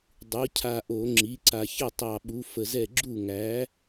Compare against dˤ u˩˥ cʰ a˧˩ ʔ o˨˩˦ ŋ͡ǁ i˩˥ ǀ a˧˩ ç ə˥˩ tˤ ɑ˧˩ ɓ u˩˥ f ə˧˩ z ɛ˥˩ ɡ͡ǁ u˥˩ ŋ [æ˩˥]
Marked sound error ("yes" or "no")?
no